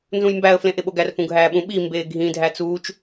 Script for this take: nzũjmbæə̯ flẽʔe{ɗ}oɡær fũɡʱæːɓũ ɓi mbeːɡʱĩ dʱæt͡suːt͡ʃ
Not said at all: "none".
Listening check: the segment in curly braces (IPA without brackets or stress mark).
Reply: ɓ